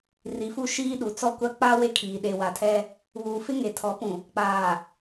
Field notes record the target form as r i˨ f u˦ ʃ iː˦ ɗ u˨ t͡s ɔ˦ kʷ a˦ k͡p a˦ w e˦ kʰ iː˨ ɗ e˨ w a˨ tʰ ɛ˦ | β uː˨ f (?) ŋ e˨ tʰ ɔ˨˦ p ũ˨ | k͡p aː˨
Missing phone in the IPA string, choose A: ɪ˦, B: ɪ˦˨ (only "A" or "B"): A